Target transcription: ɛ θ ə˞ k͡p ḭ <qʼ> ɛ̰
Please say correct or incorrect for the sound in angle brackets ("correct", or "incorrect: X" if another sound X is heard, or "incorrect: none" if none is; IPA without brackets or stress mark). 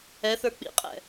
correct